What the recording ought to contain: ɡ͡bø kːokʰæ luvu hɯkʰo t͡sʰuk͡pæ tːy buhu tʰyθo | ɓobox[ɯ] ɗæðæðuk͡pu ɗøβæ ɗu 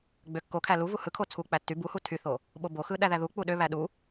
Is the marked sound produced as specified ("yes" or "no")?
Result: yes